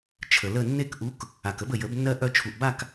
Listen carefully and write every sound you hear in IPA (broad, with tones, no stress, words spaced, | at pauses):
t͡ʃʰə˩lə˥˨ nːe˥˨k ʔu˨˥k | a˩kə˨˥bə˩ jə˨˩˦bnːɜ˦ ʔœ˦ t͡ʃʰu˩ʔba˥˨k